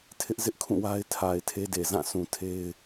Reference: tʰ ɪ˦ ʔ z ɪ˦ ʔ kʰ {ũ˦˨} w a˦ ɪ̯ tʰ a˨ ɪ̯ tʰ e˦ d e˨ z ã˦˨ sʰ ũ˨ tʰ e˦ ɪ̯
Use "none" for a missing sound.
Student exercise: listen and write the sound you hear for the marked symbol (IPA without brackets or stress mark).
ũ˦˨